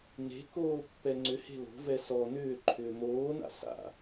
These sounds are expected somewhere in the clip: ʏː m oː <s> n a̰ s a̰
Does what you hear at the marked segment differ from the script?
yes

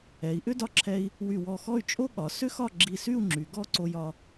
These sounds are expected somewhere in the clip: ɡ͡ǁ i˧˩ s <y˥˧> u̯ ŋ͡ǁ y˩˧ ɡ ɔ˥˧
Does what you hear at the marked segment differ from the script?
no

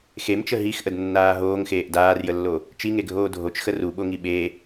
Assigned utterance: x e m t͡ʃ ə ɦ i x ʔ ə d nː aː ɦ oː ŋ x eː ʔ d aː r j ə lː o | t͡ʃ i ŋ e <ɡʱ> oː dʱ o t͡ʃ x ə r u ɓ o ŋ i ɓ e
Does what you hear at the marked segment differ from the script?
no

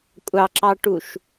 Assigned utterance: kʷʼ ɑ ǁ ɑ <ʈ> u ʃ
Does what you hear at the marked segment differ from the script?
no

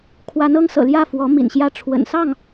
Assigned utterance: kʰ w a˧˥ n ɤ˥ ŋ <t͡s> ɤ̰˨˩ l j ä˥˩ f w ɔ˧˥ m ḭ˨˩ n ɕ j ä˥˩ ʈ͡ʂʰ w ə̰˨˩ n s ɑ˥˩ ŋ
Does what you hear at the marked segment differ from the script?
yes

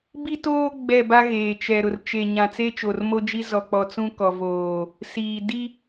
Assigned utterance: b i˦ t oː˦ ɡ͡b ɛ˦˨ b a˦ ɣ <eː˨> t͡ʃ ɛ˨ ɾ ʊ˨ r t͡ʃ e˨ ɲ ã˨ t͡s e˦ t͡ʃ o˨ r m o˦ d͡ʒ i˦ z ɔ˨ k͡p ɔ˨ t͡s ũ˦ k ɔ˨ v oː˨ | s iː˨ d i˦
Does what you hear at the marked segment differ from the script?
no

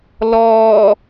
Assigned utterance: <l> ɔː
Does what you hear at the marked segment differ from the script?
no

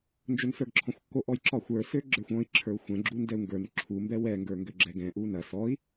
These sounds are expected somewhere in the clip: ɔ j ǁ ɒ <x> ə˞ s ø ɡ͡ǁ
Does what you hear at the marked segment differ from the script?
yes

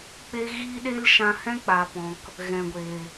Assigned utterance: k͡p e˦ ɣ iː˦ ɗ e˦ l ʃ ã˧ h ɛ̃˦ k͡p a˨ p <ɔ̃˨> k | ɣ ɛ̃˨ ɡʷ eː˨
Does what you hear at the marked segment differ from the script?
no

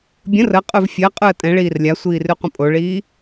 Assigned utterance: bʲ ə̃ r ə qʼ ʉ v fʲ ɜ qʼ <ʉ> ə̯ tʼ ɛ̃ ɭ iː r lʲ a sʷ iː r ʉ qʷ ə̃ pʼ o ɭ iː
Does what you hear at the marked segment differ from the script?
no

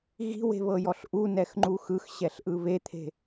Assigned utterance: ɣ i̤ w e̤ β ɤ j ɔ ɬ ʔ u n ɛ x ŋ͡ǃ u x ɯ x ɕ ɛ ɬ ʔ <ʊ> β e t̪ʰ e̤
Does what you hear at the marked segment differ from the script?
yes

